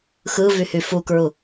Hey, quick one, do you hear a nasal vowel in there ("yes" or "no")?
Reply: no